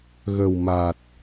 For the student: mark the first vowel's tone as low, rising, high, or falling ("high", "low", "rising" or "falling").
low